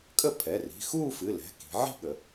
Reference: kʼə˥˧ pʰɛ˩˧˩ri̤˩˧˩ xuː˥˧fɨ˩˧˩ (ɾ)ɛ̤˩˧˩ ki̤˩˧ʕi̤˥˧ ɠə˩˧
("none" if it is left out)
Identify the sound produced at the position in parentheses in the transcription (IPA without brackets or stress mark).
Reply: l